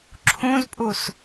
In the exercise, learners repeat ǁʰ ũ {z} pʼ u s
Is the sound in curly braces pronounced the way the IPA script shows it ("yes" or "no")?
yes